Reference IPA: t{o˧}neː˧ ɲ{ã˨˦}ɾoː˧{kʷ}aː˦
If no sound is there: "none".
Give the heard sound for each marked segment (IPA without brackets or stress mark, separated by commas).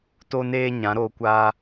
o˧, ã˨˦, kʷ